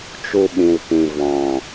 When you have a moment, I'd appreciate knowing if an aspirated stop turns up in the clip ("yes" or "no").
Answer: no